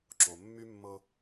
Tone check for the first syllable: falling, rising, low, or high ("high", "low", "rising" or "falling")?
low